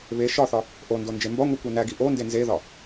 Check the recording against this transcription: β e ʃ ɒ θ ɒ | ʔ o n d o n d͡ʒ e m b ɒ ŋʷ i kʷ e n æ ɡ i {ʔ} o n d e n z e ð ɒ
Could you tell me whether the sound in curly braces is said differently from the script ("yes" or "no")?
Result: no